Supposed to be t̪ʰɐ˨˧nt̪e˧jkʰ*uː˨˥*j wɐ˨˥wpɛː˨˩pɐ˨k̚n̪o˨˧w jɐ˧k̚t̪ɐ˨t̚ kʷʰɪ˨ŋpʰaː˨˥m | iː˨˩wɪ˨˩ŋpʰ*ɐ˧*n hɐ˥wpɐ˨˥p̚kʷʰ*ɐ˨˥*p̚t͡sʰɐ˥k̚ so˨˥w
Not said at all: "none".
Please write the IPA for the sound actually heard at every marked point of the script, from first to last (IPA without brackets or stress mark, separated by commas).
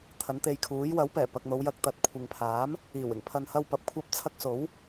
uː˨˥, ɐ˧, ɐ˥